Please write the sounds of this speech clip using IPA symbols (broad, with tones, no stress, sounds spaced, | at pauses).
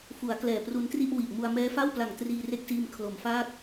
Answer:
f u˩˦ a̯ k l ɛː˨˩ p r u˧ n t r i˥˩ ʔ w i˨˩ ʔ m u˧ a̯ m ɛː˦˥ f a˥˩ w p l a˨˩ ŋ t r iː˧ r e˥˩ k̚ s iː˧ m kʰ l o˩˦ m f aː˥˩ k̚